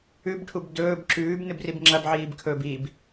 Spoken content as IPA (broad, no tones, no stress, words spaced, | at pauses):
ʉbʈʰub dɵːb ǁʉːb nɨbribŋ͡ǁɐbʕiːb kʰɵb ib